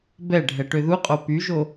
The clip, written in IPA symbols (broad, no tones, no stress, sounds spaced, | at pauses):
b ɛ ɖʱ ɛ ʈ ø ð u qʼ o p y ʒ o